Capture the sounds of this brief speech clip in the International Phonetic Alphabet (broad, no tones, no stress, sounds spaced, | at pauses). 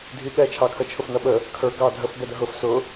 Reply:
dʱ i ɠ ɛ t͡ʃʰ ɑ kʰ ə t͡ʃʰ ʊ f n ʌ ɓ ə | kʰ ə˞ ɡ ɑ dʱ ə f b ɛ d ə ɦ ʊ f s ʊ